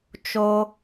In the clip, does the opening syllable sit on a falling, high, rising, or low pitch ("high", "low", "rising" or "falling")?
high